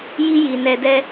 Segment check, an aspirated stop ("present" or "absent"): absent